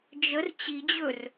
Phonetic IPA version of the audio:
d͡ʒ ə r t͡ɕ i d͡ʑ ɵ r

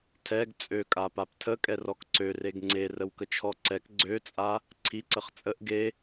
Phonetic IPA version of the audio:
tʰ ɛ ɡ t͡sʼ ø kʼ a p a p tʰ ə kʼ ɛ r ɔ k ǀ ø r e ɡ ŋ͡ǀ e r ə w k ə t͡ʃʰ ɔ ǀ ɛ k ɡ͡ǀ ø t͡sʼ a | ǀʰ i ǀ ə χ t͡sʼ ə ʔ ɡ e

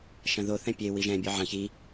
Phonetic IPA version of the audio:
ʃ ɐ̃ ð o θ ɛ̃ pʲ e w i ʒ ɛ̃ bʲ ɔ ʕ ɐ̃ ç i

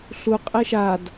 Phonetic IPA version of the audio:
ɬ u qʼ e ʃ a d

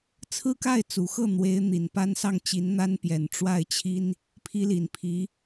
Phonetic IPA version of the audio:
t͡sʰ ɹ̩˥ k a˥˩ ɪ̯ t͡s u˨˩ x ɤ˥˩ n̪ w e˧˥ ɪ̯ n̪ i˨˩ n p a˥ n s ɑ˥˩ ŋ t͡ɕ i˧˥ n n̪ a˥ n p j ɛ˨˩ n ʈ͡ʂ w a˥˩ ɪ̯ t͡ɕʰ i˥ n | pʰ i˥ l i˨˩ n pʰ i˧˥

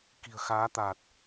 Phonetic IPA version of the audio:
k i̤˨˩ ə̯ x aː˨˦ t̪ aː˨˩ t̚

